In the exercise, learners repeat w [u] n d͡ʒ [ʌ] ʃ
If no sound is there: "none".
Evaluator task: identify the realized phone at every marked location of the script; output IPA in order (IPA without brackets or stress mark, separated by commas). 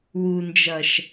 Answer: u, ʌ